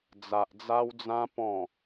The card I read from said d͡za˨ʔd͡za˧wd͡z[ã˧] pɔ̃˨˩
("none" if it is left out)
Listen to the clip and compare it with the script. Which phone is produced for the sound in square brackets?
ã˧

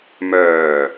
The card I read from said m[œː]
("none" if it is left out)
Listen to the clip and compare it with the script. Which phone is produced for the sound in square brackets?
œː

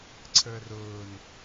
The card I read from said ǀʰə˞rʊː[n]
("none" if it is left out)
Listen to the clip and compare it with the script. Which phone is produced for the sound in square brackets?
n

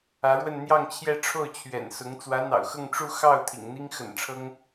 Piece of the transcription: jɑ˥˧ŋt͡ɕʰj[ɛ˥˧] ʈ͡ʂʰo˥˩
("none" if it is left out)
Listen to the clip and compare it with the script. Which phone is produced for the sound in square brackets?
ɛ˥˧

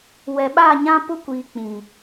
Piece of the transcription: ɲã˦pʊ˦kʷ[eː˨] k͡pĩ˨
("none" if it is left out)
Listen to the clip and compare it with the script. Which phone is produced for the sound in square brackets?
iː˨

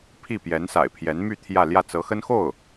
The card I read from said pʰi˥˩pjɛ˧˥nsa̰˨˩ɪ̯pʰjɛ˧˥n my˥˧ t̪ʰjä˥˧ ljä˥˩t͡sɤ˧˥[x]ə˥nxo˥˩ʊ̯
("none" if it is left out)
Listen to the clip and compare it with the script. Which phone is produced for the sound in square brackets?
x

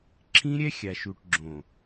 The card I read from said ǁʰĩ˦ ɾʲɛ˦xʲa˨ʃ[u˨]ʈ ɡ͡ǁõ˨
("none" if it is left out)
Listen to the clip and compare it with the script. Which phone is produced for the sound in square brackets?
u˨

